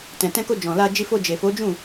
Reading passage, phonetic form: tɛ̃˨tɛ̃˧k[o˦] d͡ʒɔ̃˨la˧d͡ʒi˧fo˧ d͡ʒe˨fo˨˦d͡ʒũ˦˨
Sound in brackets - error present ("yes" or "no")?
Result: yes